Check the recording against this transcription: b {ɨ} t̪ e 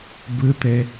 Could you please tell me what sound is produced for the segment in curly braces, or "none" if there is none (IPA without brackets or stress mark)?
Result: ɨ